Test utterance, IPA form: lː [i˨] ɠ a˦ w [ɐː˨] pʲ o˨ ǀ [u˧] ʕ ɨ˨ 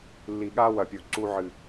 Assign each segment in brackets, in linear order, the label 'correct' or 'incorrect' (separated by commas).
correct, incorrect, correct